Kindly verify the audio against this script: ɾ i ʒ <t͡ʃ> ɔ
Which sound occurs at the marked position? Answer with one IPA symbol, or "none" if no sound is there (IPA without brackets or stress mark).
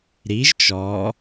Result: t͡ʃ